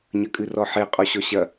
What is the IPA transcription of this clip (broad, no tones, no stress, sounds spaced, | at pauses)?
ɲ ɐ kʼ ɨ r ɔ ħ e qʼ ɔ ɕ ɔ ɕ ɐ